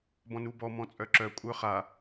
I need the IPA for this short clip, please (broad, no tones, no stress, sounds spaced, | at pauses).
b ɔ̃ n u b ɔ m ɔ̃ t͡sʼ œ ǁ œ kʷʼ œ χ a